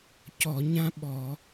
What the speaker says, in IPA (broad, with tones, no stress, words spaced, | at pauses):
cɔ˧˩˧ɲã˥ ɓɔ˧˩˧